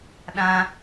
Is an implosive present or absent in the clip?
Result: present